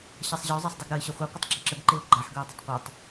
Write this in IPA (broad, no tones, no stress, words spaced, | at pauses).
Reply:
ɕasˤʑəo̯ zˤasˤdˤeɡɾʌe̯ ɕʌχʷe qʷətˤɡ͡ǁaǁəɡ ǃeo̯ɡ͡ǃaħ ɡʌe̯dˤətˤqʷʌtˤ